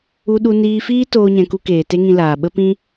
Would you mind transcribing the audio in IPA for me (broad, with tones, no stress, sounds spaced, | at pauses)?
u˧ ɗ u˧ n iː˧ f iː˦ t oː˦ ɲ ɛ̃˧ k u˦ k eː˨ t e˦ ŋ ĩ˧ l aː˨ ɓ ə˦ p ĩ˦